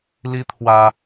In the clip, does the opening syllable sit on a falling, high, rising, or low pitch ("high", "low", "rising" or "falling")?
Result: high